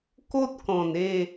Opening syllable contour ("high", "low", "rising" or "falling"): high